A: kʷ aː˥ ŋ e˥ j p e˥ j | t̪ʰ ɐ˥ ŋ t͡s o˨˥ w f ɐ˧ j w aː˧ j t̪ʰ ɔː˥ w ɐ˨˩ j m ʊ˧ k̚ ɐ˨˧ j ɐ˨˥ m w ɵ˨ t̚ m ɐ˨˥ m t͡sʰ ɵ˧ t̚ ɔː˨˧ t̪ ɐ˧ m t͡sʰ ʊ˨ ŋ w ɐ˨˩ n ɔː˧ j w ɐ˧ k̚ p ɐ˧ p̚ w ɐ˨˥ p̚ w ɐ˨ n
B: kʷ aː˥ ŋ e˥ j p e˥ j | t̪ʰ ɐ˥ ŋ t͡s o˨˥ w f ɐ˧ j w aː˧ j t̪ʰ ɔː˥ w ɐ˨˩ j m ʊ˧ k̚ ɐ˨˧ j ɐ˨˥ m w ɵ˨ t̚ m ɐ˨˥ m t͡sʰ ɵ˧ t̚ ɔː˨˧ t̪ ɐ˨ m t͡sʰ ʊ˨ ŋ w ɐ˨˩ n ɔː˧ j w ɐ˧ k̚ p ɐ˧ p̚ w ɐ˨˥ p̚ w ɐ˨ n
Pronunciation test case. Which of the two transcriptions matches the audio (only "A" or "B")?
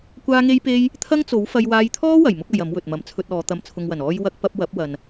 B